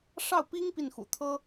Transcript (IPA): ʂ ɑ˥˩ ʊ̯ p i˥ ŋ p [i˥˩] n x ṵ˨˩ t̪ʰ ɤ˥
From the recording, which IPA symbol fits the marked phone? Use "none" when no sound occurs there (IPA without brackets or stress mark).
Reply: i˥˩